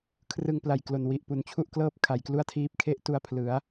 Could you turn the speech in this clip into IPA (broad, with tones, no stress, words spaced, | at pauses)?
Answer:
kʰrɯ˧ŋpla˨˩jklo˨˩n wi˨˩ʔ pu˨˩nt͡ɕʰu˥˩ʔklɤː˥˩p̚ kʰa˨˩jklu˥˩a̯tʰiː˦˥p̚ kʰe˥˩ʔtu˧a̯ pʰlɯ˩˦a̯